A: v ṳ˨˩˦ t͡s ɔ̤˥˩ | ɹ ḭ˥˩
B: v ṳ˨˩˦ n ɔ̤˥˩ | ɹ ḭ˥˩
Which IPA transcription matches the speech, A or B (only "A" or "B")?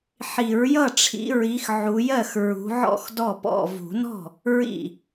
B